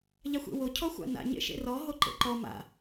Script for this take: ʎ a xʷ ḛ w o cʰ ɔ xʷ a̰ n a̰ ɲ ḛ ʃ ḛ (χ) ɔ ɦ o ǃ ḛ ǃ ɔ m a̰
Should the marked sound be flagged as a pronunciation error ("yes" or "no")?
yes